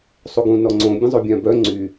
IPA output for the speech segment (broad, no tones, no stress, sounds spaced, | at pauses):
sˤ u ɡ ũ n ɔ ŋ͡ǀ õ bʲ ə̃ zˤ o bʲ ã b œ ŋ͡ǀ y